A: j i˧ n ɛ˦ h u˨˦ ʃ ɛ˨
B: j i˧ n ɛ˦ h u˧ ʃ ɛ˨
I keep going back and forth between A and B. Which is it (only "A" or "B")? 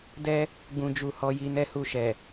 B